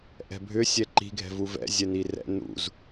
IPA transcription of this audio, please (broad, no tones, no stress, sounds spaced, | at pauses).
ʔ ɛ̤ bʱ ʏ sʲ ɛ ǃ i̤ ɡʱ ɛ̤ v u v ɛ̰ zʲ ɛ n i r ɛ̰ n ṵ z